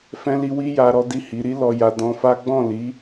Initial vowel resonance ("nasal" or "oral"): nasal